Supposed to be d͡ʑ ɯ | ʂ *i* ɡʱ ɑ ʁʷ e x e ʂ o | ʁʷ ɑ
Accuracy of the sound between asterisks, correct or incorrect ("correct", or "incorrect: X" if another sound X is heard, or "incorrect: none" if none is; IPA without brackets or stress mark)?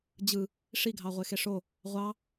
correct